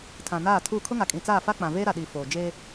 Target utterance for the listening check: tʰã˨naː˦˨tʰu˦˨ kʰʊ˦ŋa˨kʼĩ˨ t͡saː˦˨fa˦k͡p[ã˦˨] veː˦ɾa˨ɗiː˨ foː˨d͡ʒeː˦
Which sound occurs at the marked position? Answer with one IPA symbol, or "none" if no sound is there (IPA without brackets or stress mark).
ã˨